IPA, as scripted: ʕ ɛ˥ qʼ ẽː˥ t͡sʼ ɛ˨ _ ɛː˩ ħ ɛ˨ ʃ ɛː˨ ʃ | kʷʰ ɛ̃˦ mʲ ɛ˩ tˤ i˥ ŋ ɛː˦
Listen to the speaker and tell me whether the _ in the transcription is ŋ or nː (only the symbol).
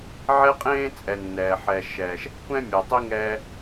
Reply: nː